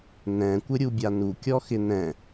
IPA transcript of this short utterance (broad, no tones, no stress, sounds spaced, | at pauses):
n ɛ̃ kʷ ɪ ɾʲ u bʲ a n u kʲ ɔ x ɪ n ɛ̃